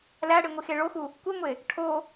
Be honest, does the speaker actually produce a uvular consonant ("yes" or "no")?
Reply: no